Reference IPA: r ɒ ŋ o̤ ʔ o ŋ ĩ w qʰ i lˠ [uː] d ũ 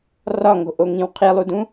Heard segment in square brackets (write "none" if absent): u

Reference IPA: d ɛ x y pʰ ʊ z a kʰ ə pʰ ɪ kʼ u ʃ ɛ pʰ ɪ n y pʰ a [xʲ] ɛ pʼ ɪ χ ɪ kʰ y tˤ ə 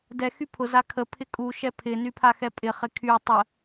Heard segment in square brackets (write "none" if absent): x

